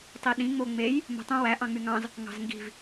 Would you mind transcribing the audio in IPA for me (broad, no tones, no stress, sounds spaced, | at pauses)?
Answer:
tˤ i ɗ ĩ ŋ͡m o ŋ͡m e j | m o̤ tˤ õ w æ ʔ ɑ̃ ŋ͡m y ŋ ɑ̃ z | ŋ ɑ̤ z ŋ ɡ i̤ v